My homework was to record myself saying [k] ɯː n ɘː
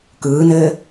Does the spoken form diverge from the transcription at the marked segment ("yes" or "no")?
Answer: no